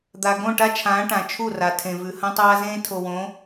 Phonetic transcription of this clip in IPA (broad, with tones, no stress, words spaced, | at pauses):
d̪a˨ ɡõ˦˨ʈa˦t͡ʃʰãː˨˦ ʈã˨t͡ʃʰu˦˨ra˨ tʰẽ˨vʉ˨ hɐ̃˦tˤaː˦zẽː˦ tʰo˨wõ˨˦